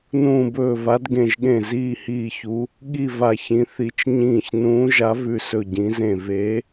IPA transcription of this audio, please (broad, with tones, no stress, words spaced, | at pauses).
nũː˧˩bɵː˧˩va˨˦d ɡẽ˧˩ʒɠẽ˧˩ ziː˧˩hiː˧˩çu˨˦ | ɠi˧˩ va˧˩çĩ˨˦θi˨˦t͡ʃ ɲĩː˧˩ç nũː˨˦ʒa˨˦vʉ˧˩ sɵ˧˩ɟĩ˨˦zẽ˧˩ ve˨˦